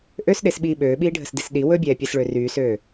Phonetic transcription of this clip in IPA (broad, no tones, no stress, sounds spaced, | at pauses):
ʔ ø s ɗ e s ɓ iː ɓ øː ɓ iː ɖʱ ə s d i s ɗ i w ɵ bʲ ɛː pʲ ɛ s ɭ ø r yː s øː